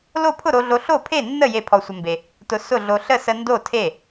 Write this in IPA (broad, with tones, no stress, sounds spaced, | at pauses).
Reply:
l o˥˩ pʰ ʊ˥˩ ɾ o˧ ɮ o˧ ɬ o˥˩ pʰ e˥˩ nː ə˥˩ j e˥˩ pʰ ɔ˧ sʷ ə˧ m b e˧ | t ʊ˧ s ʊ˥˩ ɮ o˧ ɬ ə˥˩ s ə˧ n d o˥˩ tʰ e˥˩